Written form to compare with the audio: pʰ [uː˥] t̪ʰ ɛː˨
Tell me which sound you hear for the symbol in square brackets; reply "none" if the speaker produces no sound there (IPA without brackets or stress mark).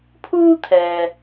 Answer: uː˥